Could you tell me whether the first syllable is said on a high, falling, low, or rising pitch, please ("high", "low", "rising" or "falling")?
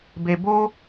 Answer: low